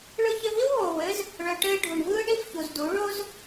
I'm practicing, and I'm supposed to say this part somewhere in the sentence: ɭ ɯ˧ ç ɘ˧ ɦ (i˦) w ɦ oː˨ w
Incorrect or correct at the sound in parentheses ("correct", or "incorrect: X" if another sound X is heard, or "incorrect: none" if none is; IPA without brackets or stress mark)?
correct